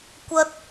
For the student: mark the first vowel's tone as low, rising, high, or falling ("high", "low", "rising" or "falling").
high